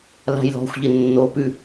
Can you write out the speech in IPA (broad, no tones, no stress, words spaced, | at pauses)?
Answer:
la̤jlɔ̤xʷʎɪ nːopʉ